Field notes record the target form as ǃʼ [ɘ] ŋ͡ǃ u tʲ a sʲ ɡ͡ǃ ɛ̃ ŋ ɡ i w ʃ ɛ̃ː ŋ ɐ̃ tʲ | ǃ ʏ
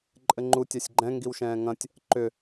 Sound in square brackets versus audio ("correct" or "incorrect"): correct